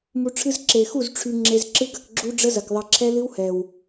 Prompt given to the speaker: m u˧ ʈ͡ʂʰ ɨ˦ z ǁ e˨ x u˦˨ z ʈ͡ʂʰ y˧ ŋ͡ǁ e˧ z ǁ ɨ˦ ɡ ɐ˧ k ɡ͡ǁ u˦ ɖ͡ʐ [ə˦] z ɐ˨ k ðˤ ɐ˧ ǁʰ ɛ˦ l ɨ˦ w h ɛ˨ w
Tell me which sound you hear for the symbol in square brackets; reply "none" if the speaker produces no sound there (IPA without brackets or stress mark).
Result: ə˦